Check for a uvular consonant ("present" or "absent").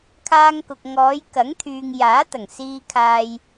absent